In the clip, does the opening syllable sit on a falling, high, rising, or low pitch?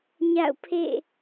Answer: falling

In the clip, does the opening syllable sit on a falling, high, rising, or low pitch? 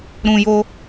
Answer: high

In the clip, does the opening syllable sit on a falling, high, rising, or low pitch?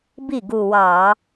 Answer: falling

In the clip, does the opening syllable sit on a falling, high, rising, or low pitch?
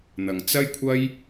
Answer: low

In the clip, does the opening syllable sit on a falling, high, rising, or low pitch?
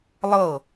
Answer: falling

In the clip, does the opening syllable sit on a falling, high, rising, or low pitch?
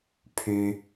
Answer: high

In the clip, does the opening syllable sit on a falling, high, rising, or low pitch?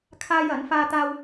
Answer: high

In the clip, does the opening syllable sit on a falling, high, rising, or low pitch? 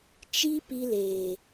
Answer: high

